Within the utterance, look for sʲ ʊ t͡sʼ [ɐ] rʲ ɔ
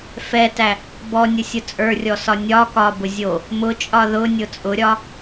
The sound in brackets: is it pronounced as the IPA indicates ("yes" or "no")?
no